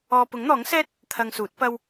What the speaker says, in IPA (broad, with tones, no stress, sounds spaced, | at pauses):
ɔː˧ p ʊ˨˥ ŋ n̪ ɔː˨˥ ŋ s ɛː˥ t̚ | t̪ʰ ɐ˧ ŋ s uː˨˥ t̚ p ɐ˥ w